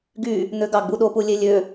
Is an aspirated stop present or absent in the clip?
absent